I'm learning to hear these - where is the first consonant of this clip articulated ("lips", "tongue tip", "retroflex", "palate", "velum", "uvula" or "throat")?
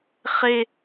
uvula